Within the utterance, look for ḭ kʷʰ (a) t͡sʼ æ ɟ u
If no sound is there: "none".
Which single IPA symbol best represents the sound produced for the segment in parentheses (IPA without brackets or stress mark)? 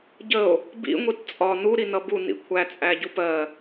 æ